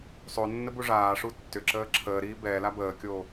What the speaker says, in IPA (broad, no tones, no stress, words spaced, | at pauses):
sˤonːə buʐaːʂu tːʏ ǁəːǁʰəːɾiː bɛ labəːkʲo